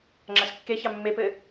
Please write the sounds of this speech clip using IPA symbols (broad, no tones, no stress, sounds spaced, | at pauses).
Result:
ŋ͡ǁ a s kː e ç ɑ mː e p ɘ